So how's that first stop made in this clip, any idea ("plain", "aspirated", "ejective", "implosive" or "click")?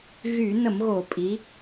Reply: ejective